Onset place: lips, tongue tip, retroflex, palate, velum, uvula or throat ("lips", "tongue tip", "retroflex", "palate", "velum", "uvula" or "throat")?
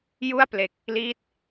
palate